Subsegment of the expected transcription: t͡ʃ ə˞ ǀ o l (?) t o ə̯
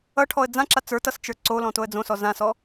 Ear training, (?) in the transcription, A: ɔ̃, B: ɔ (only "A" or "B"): A